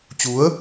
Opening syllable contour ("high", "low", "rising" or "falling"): rising